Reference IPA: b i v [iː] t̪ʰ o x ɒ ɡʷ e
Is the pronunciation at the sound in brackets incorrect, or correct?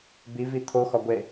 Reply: incorrect